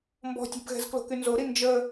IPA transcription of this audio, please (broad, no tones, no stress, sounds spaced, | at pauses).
m b ɔ̤ tʲ ɛ̤ b ɣ ɛ̤ z k l o̤ k y n z o ɾ i n d͡ʒ ə